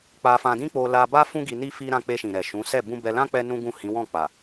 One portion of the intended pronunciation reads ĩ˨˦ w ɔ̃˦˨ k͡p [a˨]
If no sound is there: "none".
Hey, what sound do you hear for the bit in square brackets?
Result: a˨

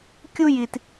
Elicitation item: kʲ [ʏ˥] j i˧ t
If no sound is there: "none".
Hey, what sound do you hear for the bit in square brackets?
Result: u˥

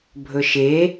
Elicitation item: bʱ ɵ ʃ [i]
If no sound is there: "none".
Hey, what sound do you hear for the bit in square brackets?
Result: e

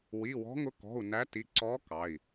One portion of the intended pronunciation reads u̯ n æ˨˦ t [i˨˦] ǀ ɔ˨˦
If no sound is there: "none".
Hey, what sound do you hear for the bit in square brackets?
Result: i˩˧˩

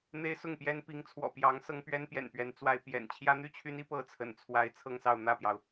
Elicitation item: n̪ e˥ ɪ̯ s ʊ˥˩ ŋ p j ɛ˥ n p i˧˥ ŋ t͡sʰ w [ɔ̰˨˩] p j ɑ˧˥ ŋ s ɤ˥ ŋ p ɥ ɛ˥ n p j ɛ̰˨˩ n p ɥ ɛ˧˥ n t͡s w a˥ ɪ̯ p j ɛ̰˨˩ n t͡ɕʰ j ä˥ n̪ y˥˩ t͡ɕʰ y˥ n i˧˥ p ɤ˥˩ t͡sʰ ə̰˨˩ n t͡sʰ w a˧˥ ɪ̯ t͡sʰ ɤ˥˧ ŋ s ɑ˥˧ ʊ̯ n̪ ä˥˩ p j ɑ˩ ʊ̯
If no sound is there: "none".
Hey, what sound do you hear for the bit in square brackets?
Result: ɔ̰˨˩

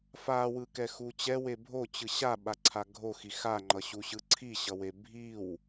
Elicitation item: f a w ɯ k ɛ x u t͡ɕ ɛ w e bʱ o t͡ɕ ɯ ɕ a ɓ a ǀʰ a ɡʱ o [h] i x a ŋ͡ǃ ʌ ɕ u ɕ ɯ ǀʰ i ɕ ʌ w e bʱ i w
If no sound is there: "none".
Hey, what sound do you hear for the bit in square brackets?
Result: x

